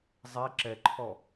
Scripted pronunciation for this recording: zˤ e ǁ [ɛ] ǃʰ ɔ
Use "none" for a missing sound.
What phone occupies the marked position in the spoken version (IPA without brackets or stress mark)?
ɛ